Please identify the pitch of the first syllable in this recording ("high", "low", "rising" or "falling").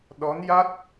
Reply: rising